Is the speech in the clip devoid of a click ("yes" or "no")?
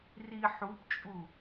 yes